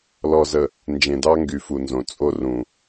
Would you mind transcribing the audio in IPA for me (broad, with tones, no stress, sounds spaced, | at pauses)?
l ɔ˨ z ə˨ | n d͡ʒ ẽ˨ d ɑ˦ ŋ ɡ y˨ f u˨ n z õ˨ t͡sʼ o˦ r ũ˨